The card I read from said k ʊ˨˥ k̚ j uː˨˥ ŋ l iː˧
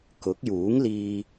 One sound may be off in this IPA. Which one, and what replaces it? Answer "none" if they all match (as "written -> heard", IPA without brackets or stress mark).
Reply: none